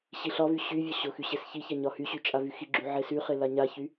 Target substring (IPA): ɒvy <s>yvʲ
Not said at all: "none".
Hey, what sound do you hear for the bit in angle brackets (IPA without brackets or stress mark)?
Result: ɕ